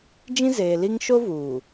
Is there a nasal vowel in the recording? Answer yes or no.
yes